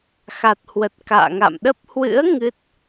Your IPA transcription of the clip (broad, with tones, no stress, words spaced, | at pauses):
xa˨˩t̚hwə˨˩t̚ ka̰ː˧˨ŋa̰˧˨mɗə˦˥p̚ hwɨ̰˧˥ə̯ ŋɨ˦˥t̚